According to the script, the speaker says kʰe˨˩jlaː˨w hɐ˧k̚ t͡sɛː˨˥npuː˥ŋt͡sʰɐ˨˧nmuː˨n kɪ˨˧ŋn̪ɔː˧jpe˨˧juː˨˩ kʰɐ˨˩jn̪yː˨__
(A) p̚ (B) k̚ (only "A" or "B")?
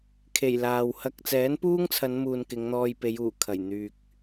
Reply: B